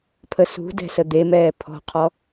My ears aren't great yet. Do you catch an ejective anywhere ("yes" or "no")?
no